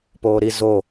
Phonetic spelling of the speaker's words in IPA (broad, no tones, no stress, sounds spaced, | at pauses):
p oː ɾ i z o